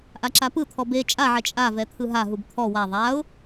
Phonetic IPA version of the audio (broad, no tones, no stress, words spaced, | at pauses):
ʔaǁapɯt̪ʰɔ be t͡ʃʼaʕɛ t͡ʃʼavɛ t̪ʰɯɦaɦub t̪ʰɔ wa ðˤaʊ̯